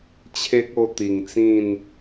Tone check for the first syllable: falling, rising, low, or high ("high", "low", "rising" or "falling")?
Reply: high